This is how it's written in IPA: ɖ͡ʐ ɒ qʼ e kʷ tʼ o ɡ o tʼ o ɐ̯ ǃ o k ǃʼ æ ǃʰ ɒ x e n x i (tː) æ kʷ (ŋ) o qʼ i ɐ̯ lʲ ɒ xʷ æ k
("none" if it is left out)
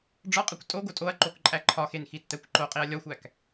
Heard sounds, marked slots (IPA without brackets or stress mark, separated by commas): tː, ǃ